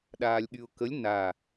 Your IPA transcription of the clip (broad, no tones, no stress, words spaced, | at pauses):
ɗaːlʲɠyʊ̯kəlʲ na